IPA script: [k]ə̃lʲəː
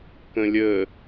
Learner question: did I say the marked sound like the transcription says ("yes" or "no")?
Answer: yes